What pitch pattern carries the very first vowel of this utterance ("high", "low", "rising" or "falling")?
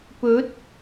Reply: rising